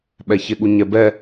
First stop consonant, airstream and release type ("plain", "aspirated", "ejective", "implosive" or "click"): implosive